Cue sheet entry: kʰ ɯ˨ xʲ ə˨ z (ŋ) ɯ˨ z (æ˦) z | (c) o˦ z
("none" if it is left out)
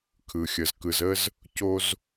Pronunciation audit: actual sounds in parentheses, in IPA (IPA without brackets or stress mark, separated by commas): k, ə˦, c